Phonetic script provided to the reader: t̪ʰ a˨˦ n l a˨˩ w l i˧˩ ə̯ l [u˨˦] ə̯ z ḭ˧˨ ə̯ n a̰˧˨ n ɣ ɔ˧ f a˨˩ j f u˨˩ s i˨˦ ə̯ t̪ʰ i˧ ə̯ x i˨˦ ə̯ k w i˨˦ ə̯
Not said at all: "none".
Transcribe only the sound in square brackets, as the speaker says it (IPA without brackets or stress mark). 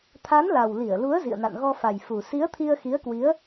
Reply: u˨˦